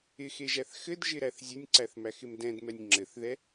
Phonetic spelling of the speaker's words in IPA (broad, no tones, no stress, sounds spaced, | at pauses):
ɪ x e ʒ æ θ x ɘ d ʒ ɪ ɾ æ θ zʲ ɘ nʲ ǀ æ θ m æ x ɪ m d ɛ̃ d m ɛ nʲ ŋ͡ǁ ɘ θ ð ɛ